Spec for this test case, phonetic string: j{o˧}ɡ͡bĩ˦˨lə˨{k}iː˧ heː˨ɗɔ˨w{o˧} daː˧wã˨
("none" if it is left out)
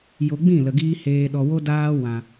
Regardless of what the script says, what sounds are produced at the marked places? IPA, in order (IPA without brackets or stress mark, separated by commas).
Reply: o˧, ɡ, o˧